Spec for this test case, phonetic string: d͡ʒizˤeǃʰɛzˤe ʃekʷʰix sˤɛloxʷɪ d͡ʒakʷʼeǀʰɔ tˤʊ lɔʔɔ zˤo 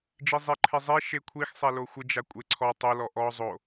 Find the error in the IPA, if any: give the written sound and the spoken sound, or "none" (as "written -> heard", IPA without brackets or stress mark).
none